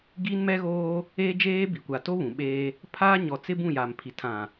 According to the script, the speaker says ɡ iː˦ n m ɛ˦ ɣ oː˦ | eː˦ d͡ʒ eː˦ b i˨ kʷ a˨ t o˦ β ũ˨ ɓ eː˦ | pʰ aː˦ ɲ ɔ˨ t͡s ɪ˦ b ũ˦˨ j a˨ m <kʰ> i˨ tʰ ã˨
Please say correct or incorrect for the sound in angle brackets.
incorrect